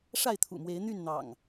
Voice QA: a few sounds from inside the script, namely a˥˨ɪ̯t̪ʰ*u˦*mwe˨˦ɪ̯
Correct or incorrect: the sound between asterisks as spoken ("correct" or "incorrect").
incorrect